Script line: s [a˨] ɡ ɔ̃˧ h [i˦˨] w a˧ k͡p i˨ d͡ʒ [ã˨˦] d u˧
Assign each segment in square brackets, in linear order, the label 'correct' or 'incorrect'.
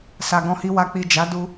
correct, incorrect: i˧, incorrect: a˨˦

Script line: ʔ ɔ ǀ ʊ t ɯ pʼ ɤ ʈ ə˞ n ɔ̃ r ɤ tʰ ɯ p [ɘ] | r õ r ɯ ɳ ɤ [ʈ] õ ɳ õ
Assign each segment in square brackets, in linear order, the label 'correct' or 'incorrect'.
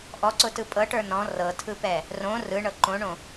incorrect: ɛ, incorrect: ǃ

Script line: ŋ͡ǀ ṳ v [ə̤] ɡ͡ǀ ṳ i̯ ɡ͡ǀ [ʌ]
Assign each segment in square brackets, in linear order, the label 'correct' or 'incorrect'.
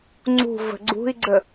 correct, incorrect: ə

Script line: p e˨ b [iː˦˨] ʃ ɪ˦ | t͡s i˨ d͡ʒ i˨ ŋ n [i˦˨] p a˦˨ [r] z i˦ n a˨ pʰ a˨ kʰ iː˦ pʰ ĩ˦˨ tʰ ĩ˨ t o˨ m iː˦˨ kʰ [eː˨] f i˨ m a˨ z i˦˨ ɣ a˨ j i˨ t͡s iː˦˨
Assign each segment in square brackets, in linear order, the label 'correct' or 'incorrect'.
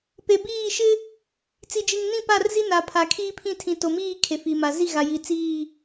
correct, incorrect: ĩ˦˨, correct, incorrect: e˨

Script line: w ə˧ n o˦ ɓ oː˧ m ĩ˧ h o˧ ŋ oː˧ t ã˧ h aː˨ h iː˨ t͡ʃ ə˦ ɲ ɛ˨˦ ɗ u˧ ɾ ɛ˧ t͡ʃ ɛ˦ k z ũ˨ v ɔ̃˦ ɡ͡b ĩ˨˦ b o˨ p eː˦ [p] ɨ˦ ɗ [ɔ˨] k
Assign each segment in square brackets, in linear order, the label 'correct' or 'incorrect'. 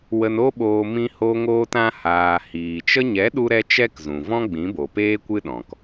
incorrect: kʷ, incorrect: ɔ̃˨

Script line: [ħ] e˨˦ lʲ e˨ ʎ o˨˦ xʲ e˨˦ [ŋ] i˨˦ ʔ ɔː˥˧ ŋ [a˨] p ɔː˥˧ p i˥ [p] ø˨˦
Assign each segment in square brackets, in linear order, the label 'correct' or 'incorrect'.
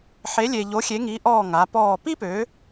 correct, correct, incorrect: a˨˦, correct

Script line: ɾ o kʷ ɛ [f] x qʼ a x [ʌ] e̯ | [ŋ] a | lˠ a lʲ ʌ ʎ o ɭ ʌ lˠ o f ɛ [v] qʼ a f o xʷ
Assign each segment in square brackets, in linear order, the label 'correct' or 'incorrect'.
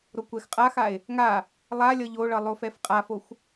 incorrect: none, incorrect: a, correct, incorrect: f

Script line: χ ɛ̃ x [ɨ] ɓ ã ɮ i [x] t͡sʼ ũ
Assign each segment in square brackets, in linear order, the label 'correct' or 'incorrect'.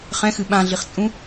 correct, incorrect: χ

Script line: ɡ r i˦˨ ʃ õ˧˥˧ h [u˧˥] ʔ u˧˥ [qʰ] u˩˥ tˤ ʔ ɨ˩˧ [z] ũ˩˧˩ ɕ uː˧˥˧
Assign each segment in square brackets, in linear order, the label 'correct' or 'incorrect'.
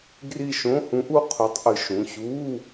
incorrect: ũ˧˥, correct, incorrect: ʃ

